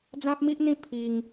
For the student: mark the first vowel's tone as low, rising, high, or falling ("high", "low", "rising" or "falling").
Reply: high